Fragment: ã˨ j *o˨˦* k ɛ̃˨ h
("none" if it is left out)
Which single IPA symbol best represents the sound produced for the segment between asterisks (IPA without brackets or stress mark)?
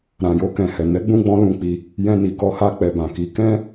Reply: o˧